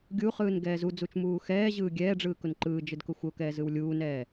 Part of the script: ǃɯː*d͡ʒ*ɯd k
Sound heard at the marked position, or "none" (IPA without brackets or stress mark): d͡ʒ